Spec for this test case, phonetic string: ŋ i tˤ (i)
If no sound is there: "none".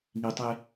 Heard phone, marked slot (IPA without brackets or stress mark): e